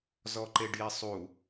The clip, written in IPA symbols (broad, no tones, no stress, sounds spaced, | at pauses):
z ɔ ǃ e ɖ j i sˤ u